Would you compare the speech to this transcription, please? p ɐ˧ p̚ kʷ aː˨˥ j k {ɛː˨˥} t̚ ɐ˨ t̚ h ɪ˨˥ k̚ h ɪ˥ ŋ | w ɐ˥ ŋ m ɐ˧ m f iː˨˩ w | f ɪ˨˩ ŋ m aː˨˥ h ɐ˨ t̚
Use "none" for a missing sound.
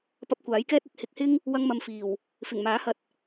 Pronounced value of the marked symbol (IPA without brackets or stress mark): ɛː˥